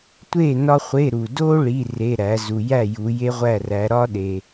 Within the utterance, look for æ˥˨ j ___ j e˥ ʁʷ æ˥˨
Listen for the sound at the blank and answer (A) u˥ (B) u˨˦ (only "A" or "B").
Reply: B